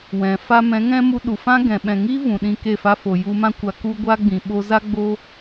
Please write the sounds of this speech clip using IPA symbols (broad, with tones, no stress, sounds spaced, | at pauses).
w ɛ̃˨ f a˧ m ɛ̃˨˦ ŋ ɛ̃˦ m u˧ ɗ u˨ f ã˦ ɡ ɛ̃˨ ɓ ɛ̃˨ ŋ iː˦ v ũ˨ ɗ ĩ˧ k e˦˨ f a˦ f o˨ j u˧ m ã˦ kʷ a˧ k u˦ ɡʷ a˦ ɡ͡b ĩ˨ ɓ o˧ z a˦ ɡ͡b o˦